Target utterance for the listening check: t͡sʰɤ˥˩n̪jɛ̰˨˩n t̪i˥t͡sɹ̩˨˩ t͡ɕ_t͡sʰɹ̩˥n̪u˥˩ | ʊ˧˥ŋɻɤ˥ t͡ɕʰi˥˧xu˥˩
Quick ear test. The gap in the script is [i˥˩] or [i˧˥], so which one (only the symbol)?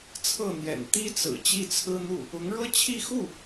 i˥˩